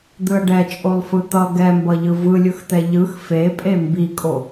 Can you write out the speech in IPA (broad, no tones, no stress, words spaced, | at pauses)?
d̪ɯɐ̯ɖɛt͡ʃʼolˠ fɯt̪ʌ ɡɛmbʌʎɯ vɯlʲɯxt̪ɛ ʎɯx fepʼe mbikʼo